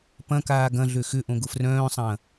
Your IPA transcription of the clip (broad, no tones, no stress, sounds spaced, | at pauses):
p ɐ̃ k aː ɡ ɐ̃ ɮ ø x ʏ ʔ õ ɡ ʊ f r œ̃ː sˤ ɐ̃ː